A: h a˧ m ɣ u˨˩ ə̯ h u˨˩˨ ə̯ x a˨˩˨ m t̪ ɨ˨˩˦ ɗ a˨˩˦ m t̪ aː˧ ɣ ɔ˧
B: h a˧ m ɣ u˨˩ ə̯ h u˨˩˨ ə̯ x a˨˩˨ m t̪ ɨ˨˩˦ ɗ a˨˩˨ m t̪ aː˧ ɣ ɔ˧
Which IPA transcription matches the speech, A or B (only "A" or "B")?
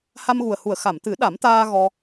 A